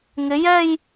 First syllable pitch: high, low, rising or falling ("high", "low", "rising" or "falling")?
rising